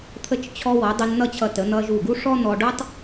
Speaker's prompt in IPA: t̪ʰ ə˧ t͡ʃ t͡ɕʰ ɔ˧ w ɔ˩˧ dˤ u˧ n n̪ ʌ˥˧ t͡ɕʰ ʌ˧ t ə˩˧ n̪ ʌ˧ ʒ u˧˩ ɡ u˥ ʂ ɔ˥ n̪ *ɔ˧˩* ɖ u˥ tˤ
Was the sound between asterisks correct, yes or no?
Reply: no